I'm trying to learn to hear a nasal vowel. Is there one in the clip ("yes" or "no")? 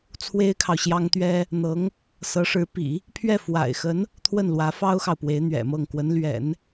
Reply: no